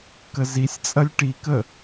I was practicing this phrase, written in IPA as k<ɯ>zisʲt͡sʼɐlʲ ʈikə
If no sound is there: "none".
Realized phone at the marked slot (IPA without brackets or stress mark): ə